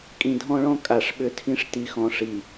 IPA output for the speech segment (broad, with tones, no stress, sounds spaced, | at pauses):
kʼ ĩ˨ dʱ ɔ̃˦ ɭ ɔ̃˦ kʼ a˨ ʂ ɓ ʏ˦ tʰ ĩ˦ ʂ t i˨ x ɔ̃˨ ʂ i˨